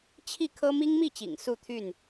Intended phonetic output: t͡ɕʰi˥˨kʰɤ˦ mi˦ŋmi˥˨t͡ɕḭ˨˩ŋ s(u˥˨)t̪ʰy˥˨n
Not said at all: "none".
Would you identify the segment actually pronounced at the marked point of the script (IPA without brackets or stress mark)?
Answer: u˥˨